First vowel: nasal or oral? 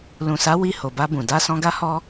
nasal